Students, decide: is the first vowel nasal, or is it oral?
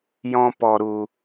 nasal